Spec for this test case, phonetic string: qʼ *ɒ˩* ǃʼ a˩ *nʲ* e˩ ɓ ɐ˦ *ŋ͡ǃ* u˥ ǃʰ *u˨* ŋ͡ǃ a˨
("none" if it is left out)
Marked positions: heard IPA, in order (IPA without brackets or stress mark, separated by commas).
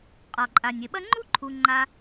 ɒ˩, nʲ, ŋ͡ǃ, u˨